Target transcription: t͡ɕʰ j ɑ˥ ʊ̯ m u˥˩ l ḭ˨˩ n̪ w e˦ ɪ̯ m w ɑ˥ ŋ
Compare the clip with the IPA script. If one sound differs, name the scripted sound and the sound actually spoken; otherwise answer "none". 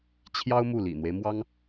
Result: none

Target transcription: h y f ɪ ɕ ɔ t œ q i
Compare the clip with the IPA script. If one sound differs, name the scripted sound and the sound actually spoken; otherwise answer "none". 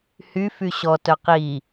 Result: ɪ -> y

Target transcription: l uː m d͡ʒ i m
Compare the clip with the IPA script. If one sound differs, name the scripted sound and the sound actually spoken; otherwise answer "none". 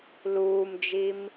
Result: none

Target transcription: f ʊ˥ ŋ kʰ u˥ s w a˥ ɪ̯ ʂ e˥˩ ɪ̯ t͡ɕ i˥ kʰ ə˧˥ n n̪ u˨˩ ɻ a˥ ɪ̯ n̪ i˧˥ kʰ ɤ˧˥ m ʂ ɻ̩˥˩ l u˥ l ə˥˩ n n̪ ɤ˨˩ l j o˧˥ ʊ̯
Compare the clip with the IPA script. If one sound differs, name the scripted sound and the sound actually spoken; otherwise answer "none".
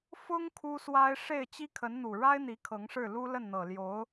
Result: m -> ŋ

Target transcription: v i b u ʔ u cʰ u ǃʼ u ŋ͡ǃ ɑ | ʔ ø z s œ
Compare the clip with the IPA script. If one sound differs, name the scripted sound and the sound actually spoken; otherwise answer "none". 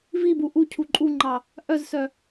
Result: ø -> œ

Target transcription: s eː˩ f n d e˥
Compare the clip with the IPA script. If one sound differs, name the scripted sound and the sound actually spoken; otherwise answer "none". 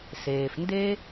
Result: none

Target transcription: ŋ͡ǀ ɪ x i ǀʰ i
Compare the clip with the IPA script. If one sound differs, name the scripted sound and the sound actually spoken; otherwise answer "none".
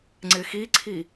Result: none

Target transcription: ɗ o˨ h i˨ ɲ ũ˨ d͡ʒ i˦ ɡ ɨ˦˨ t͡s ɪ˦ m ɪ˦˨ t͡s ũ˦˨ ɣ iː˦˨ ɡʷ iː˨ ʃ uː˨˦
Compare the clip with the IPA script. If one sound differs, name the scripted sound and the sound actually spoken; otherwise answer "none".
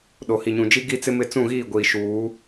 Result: ɨ˦˨ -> i˦˨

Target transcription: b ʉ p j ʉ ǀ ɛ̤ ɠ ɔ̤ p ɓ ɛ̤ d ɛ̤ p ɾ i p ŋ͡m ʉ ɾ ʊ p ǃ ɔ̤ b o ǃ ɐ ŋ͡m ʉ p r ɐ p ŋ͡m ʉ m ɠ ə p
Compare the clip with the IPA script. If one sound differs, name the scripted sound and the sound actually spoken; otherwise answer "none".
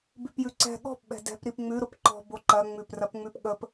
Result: m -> p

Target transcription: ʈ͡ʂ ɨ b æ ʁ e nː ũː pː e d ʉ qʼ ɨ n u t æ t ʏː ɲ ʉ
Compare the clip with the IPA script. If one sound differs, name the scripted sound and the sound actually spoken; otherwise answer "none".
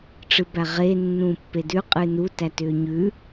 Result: none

